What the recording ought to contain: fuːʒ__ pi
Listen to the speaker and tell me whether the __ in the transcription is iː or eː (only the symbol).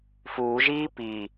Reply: iː